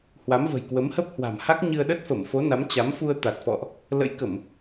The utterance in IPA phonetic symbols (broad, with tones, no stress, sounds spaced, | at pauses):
h w a˨˦ m v ə̤˨˩ j k w ə˨˦ m h ə˦˥ p̚ h w a̤˨˩ m h a˦˥ k̚ ɲ ɨ˧ ə̯ ɗ ə˦˥ t̚ f ə˧˩ m f o˨˦ n a˨˦ m t͡ɕ a˨˦ m f u˧ ə̯ t̪ a˨˩ t̚ f ɔ̰˧˨ ʔ | l ə̰˧˥ j k ə˧˩˨ m